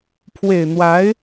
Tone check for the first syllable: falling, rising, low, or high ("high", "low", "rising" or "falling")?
low